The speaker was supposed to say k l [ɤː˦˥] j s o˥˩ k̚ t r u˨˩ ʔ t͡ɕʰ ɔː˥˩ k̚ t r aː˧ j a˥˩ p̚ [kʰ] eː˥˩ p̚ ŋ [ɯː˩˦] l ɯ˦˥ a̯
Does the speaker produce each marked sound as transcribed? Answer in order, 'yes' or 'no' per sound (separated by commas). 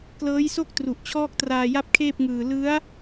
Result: yes, yes, no